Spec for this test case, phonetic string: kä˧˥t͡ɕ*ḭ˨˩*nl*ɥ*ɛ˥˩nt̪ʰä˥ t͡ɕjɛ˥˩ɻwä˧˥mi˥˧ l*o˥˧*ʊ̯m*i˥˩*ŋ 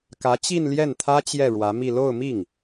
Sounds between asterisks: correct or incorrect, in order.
incorrect, incorrect, correct, correct

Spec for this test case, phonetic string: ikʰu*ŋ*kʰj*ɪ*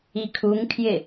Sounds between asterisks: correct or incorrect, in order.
correct, correct

